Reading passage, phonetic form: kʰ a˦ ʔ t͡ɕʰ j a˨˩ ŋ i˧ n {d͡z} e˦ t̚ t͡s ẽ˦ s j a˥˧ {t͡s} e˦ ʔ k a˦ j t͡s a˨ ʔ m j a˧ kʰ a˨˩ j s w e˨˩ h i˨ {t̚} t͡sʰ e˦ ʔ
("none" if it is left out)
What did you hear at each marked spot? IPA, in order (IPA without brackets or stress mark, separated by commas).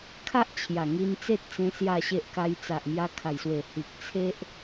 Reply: t͡s, ɕ, k̚